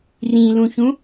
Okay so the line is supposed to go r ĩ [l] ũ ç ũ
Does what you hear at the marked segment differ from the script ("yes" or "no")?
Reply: no